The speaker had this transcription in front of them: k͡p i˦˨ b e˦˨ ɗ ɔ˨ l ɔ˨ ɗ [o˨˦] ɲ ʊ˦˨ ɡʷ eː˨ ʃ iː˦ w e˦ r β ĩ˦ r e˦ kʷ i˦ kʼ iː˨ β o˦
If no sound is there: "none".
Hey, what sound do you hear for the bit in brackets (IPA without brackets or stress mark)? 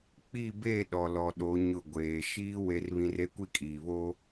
o˨˦